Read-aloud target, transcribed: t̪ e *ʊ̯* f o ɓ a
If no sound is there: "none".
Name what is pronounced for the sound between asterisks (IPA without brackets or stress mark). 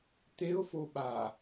ʊ̯